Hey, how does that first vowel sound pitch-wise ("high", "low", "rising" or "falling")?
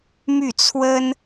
falling